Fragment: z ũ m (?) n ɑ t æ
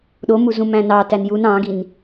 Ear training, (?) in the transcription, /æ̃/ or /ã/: æ̃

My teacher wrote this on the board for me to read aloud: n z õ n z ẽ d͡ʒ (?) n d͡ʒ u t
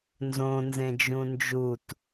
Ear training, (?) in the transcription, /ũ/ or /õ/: ũ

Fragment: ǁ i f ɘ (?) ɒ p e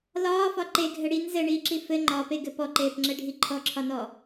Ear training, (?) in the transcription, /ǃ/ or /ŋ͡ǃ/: ŋ͡ǃ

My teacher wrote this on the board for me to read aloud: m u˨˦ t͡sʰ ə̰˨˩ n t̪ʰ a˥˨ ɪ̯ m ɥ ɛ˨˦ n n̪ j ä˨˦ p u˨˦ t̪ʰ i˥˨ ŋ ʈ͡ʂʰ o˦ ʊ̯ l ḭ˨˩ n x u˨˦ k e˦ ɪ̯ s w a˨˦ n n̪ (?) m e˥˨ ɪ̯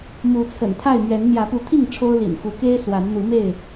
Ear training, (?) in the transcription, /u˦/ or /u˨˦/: u˨˦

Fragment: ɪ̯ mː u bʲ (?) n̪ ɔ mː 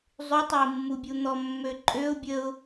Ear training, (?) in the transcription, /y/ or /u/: u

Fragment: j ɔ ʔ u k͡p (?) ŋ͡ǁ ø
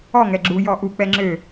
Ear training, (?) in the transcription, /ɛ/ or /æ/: ɛ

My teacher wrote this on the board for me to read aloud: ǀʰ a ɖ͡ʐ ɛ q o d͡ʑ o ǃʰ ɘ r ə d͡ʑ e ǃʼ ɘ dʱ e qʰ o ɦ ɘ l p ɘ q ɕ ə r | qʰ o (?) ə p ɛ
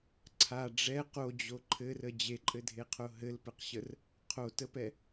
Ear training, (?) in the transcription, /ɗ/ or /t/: t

